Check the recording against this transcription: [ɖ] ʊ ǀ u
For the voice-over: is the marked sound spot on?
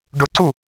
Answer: yes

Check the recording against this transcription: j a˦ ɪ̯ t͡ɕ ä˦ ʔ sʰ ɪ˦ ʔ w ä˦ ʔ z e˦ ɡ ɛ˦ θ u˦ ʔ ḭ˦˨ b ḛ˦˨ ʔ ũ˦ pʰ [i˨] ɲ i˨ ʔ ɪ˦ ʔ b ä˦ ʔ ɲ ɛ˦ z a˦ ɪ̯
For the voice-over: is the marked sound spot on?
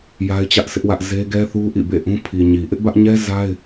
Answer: yes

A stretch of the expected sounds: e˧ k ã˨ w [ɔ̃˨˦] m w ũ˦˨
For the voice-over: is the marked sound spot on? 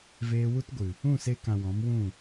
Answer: yes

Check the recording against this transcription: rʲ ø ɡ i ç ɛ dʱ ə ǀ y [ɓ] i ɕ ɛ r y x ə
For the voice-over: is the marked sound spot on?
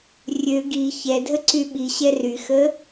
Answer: yes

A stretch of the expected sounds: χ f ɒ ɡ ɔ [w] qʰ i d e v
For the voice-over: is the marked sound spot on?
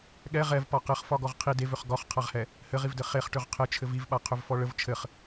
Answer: no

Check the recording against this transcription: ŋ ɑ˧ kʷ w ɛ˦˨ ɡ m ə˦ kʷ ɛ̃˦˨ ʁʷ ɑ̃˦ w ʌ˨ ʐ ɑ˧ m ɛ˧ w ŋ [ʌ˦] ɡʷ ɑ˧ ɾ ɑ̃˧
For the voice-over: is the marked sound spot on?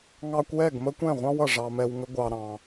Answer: no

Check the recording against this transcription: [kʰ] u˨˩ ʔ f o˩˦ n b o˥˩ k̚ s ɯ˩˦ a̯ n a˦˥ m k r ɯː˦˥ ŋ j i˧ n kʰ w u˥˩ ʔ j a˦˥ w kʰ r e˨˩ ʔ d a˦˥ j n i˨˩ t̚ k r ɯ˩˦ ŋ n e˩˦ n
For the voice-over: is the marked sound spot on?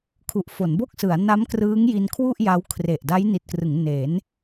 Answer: yes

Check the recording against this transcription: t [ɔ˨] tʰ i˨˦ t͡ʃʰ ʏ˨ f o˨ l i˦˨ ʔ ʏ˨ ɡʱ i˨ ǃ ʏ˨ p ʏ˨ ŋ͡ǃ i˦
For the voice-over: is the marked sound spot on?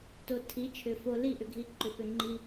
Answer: no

